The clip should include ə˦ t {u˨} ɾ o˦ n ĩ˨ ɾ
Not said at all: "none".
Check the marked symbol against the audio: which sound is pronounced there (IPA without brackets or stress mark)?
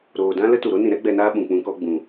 u˨